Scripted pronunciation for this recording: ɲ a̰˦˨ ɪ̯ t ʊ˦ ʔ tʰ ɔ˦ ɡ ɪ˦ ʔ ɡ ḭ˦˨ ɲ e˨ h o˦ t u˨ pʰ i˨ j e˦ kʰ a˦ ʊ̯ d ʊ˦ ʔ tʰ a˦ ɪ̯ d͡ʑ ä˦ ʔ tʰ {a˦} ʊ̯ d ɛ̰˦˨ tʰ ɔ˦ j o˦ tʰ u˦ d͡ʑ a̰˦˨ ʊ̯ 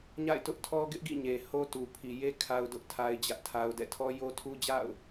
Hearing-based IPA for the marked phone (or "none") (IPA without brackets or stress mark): a˦